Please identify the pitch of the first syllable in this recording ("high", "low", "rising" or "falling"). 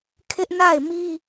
high